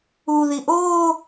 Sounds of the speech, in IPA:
u ð i ʔ oː

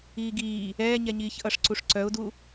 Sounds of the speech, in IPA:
iː ɡ iː | ɛː ɲ ɛ ɲ iː ç ʔ ʌ ʂ ǀ u ʂ ǀ œ ʊ̯ d u

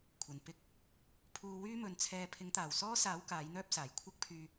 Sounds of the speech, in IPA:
kʷʰ ɐ˨ n p ɪ˥ k̚ | pʰ uː˧ w yː˥ m ɵ˨˧ n t͡sʰ ɛː˧ pʰ ɪ˨˥ ŋ t̪ aː˨˩ w s ɔː˥ s aː˨˥ w k aː˨˥ j n̪ œː˥ p̚ s aː˨˩ j kʷʰ ɐ˥ k̚ pʰ yː˧

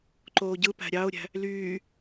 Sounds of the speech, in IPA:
ǃ oː ɟ ɯ p æ̤ ɾʲ ɑ ʊ̯ ɾʲ æ̤ | l yː

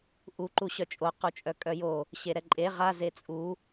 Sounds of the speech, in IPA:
ʔ u ǃ u ɕ œ t͡ʃʼ o q u t͡ʃʼ œ kʼ œ j o | ɕ e ɾ ɛ ǃʼ e ʁ a z e t͡sʼ u

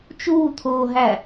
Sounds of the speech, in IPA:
t͡ʃ uː t̪ʰ oː ɦ æ

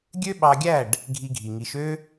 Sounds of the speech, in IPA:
ɡʲ ø˦ ɓ ɑ˧ ɡʲ æ˦˨ ɖ | ɡʱ i˧ ɡʱ i˨ ŋ i˨˦ ʃ ø˦

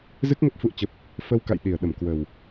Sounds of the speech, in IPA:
z ɨ˦˥ k̚ ŋ ə˦˥ p̚ f ṵ˧˨ ə̯ t͡ɕ ə˨˩ p̚ | f ə˧ w k a̰˧˨ j ɗ i˨˩ ə̯ ɗ ə˧˩ m k w ə˨˩ w

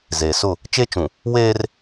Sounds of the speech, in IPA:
z eː˨ s ʊ˦˨ | t͡ʃ e˦ t͡ʃ ũ˨ | w eː˦ r

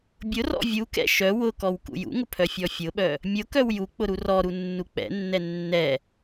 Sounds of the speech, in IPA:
bʲ ʊ r ɔ̰ vʲ u k ɛ̰ ʃ œ w ʊ k ɔ w k ṵ j ṵ ŋ ʊ pʰ œ fʲ ɔ fʲ ʊ ɓ œ | mʲ ʊ k œ w j u k͡p ʊ ɾ u r ɔ ɾ u nː u k͡p ɛ̰ nː ɛ nː ɛ

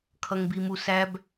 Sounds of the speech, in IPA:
kʰ ʌ ŋ b i m u s æ b

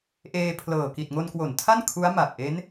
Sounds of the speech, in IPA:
ʔ eː˧ pʰ l ɤː˨˩ k i˨˩ t̚ ŋ o˧ n k w o˩˦ n tʰ a˥˩ n kʰ u˦˥ a̯ m a˨˩ p̚ ʔ e˦˥ n

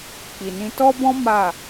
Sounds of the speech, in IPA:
k͡p i˨ n ĩ˧ t ɔ˦ b ɔ̃˦ m a˦˨

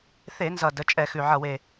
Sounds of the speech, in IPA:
θ e˧˩˧ n z ʌ˨˩ d ə˩˧ t͡ʃʼ ɛ˧˩˧ x ʉ˨˩ ʕ ʌ˨˩ w e˨˩

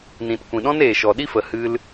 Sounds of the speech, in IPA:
n ĩ˨ t kʷ ĩ˨ ɗ ɔ̃˦ n eː˨ ʃ ɔ˨ ɗ i˦ f ə˨ h ɨ˧ l

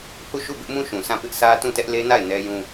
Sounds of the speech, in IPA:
h u˦˨ ʃ u˦˨ b ɪ˦ ʔ m ũ˦ ʃ ũ˨ s ã˦˨ p ɪ˦ ʔ s ä˦ t ũ˦˨ t ɛ˦ ʔ l e˦ n a˦˨ ɪ̯ n ɛ˦ j ũ˦

